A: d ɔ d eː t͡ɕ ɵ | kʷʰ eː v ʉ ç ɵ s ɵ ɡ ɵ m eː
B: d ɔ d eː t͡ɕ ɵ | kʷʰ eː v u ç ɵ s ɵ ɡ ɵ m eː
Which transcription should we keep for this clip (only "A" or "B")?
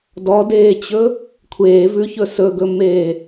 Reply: A